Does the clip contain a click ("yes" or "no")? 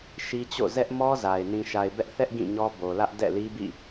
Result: no